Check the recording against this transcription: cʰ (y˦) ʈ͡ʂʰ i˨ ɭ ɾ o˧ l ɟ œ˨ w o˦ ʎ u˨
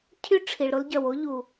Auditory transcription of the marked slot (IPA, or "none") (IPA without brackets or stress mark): y˦